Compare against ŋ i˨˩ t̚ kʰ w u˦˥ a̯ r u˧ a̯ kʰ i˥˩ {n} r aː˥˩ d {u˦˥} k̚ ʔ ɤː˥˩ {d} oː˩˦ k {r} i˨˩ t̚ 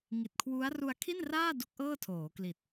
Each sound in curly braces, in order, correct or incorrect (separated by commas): correct, correct, incorrect, incorrect